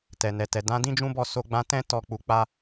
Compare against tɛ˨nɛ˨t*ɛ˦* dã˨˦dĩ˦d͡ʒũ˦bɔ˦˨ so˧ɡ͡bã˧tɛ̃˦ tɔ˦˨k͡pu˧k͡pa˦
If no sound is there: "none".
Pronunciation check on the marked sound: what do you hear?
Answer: ɛ˨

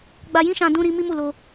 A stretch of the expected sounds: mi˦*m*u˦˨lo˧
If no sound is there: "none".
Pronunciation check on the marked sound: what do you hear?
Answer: m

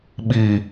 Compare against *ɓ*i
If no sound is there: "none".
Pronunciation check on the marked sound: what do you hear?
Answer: ɓ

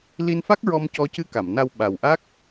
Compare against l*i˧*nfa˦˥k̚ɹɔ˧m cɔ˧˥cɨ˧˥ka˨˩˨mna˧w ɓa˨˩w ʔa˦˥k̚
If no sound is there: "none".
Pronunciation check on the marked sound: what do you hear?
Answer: i˧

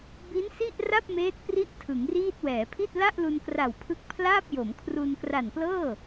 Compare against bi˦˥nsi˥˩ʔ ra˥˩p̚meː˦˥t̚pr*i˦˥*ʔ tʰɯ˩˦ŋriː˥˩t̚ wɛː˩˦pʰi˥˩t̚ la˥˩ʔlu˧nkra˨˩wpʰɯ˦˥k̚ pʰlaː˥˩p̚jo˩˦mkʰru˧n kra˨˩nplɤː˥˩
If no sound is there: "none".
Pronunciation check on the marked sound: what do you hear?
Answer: i˦˥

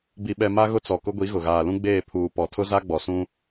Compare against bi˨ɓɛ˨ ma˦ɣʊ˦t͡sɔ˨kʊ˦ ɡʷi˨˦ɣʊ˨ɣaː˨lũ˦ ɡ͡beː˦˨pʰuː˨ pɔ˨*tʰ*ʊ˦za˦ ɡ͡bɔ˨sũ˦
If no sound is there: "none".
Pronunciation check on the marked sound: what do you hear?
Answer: tʰ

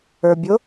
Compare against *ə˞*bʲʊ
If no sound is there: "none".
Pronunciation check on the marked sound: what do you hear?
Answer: ə˞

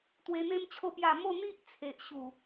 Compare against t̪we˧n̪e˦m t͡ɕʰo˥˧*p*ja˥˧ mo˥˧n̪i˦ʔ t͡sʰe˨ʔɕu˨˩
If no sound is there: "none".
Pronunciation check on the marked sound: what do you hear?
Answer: p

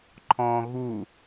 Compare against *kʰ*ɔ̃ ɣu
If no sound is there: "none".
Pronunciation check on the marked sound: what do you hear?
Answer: ǃʰ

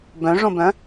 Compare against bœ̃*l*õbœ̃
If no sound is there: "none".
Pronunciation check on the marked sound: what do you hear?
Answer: ʐ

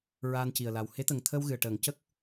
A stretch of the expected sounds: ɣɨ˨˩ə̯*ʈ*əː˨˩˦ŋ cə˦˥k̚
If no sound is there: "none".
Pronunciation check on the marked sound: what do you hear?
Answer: ʈ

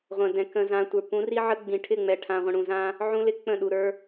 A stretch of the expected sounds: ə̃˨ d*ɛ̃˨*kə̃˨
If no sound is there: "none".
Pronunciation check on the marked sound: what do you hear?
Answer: ɛ̃˨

